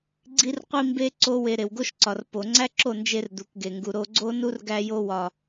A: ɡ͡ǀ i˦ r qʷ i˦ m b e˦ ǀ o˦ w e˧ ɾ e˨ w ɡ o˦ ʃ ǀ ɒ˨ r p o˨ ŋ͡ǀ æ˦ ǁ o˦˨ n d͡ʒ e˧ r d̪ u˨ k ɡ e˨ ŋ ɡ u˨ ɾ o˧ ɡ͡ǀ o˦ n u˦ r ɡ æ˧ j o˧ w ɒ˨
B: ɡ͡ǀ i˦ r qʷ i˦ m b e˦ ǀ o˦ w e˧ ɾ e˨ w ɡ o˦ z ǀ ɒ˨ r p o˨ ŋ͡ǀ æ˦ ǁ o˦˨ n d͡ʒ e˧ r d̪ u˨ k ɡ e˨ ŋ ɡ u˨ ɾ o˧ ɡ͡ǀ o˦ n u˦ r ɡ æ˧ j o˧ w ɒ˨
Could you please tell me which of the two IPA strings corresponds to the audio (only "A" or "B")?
A